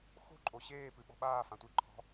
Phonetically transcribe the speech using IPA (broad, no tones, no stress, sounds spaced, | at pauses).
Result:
x o̤ ǃʼ o ɕ eː p ɨ ɓ ɔ̤ ɓ aː f ã tʷ i ǃʰ ɔ̤